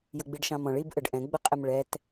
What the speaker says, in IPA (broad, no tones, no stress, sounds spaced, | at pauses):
j ʊ ɡ͡b i ɖ ʃ ɑ̃ m ɔ̃ ɭ i b ʔ ə ɖ ʔ ɛ̃ ɡ͡b ə qʼ ɛ m ɭ ɛ t